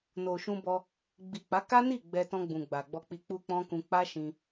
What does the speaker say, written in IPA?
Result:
n o˨ ʃ ũ˧ b ɔ˧ | ɡ͡b i˨ k͡p a˨˦ k a˦ n i˦˨ ɡ͡b ɛ˧ t ɔ̃˧ ɡ͡b ũ˨ ɡ͡b a˨ ɡ͡b ɔ˧ k͡p i˧ k͡p u˦ k͡p ɔ̃˦ k ũ˧ k͡p a˦ ʃ ĩ˧

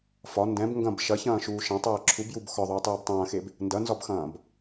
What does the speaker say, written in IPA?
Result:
f ɒ n d ɛ̃ b ŋ ɡ ɐ̃ b ʃ ɐ ç ɐ̃ː ʃ uː ʃ ɐ̃ tˤ ɛː ǁʰ u b j u b x ɒ ðˤ uː tˤ uː b tˤ ɐ̃ː x e b | n d ɐ n z ɒ b x ɐ̃ː b

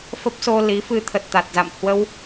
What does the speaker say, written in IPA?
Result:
f ə˦˥ p̚ s o˧ l i˨˦ f ɨ˧ t̪ʰ ə˨˩ t̚ t̪ a˨˩ t̚ z a̰˧˨ m h w ə˧ w

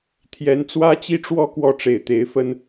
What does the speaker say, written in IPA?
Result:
t̪ʰ j ɛ˧˥ n t͡s w ä˥ t͡ɕ i˥ ʈ͡ʂ w ɔ˥˧ k w ɔ˥˩ ʈ͡ʂ e˨˩ ɪ̯ t̪ e˧˥ ɪ̯ f ə˥ n

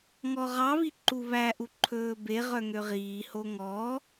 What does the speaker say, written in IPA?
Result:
ŋ ɔ ʁ ɑ β i ǃ u β æ ʔ u ǃʰ ɵː b e ʁ œ ŋ ø ʁ iː h o ŋ ɔ

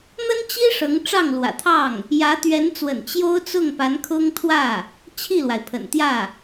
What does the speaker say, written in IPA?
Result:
n̪ ə˥ n t͡ɕ i˥ ʂ ɤ˧˥ ŋ ʈ͡ʂ ɑ˥˩ ŋ l w ä̰˨˩ t̪ʰ ɑ˥˩ ŋ | j ä˧˥ t̪ ɥ ɛ˧˥ n t͡s w ə̰˨˩ n t͡ɕ j o˥ ʊ̯ t͡s ʊ˥˩ ŋ p a˧˥ n kʰ ʊ˥ ŋ t̪ʰ w ä˥˩ | t͡ɕʰ i˥˩ l w a˩ ɪ̯ pʰ ə̰˨˩ n t̪ j ä˥˩

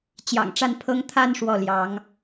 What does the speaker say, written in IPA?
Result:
t͡ɕ j ɑ̰˨˩ ŋ ʈ͡ʂ a˥˩ n pʰ ɤ˥ ŋ t̪ʰ a˥˧ n ʂ w ɔ˥˩ l j ɑ˧˥ ŋ

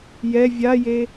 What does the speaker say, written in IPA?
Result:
j ɛ vʲ a j e

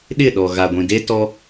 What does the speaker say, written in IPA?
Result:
ɗ ɪ˦˨ ɗ ɔ˨ ɣ a˨ ɡʷ ĩ˨ d e˦ t ɔ˦

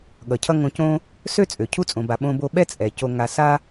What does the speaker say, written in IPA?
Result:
ɠ ʌ˩ cʰ ʌ˧ ŋ õ˧ c õ˥ | s ø˥ t͡sʼ ø˩ cʰ u˧ t͡sʼ õ˩ b a˩ ɓ õ˧ b o˧ ɓ ɛ˥ t͡sʼ ɛ˩ c o˧ ŋ a˧ s a˥

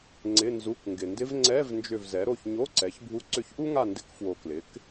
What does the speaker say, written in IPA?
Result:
ŋ͡ǀ ɪ˧˥˧ n z u˧˥˧ k ŋ ɡ ɪ˨ n d ɪ˥ v ŋ͡ǀ ɛ˧˥˧ v n d͡ʒ ʏ˦˨ v z ɛ˩˥ ɾ o˦˨ ç ɲ o˧˥˧ ǀ ɛ˩˥ ç bʱ u˧˥ ǀ ʏ˦˨ ç ʔ u˥ ŋ a˦˨ n d ɪ˧˥˧ k f w o˨ k l ɪ˩˥ k

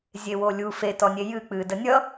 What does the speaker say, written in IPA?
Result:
zʲ e w o lʲ u f e t ɔ nʲ e j ɨ k͡p ɨ d ə nʲ ʌ

